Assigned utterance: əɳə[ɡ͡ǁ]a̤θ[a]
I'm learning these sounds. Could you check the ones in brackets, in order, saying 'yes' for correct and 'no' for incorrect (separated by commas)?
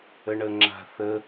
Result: no, no